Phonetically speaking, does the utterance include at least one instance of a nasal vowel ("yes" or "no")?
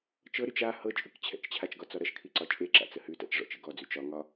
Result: no